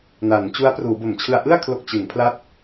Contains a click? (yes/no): no